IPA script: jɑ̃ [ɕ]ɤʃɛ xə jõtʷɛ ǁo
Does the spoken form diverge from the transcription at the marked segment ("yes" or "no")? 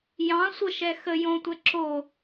yes